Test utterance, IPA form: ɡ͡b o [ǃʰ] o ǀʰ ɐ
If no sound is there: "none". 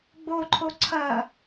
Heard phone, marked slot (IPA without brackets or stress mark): ǃʰ